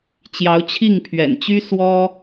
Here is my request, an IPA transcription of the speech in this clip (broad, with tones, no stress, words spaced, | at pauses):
t͡ɕjɑ˧˥ʊ̯ t͡ɕʰi˥˩ŋpʰɥɛ̰˨˩nt͡ɕy˥ swɔ˥